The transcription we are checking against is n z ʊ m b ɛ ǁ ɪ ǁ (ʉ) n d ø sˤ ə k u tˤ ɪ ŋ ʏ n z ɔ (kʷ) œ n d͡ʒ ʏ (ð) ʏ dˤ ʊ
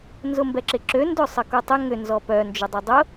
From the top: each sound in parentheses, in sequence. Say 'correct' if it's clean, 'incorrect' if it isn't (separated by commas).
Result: incorrect, incorrect, incorrect